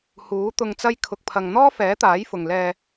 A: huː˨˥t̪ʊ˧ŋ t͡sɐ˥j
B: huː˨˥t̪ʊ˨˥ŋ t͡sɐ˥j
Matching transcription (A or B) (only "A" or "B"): A